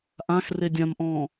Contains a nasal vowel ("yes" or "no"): yes